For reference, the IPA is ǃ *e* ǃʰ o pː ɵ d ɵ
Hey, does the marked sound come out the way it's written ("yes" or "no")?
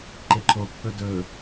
yes